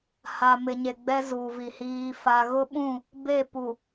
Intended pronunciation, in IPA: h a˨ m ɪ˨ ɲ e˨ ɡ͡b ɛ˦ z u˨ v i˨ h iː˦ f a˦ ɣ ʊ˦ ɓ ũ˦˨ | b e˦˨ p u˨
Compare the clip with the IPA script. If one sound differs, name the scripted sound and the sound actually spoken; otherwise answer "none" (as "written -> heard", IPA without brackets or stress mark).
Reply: none